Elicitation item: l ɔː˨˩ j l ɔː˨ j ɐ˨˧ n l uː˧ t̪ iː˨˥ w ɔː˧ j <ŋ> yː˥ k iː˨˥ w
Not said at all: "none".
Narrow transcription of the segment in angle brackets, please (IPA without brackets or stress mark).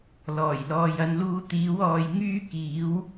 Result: ŋ